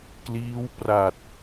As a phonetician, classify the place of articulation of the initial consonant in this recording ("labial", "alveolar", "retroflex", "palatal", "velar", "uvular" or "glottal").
velar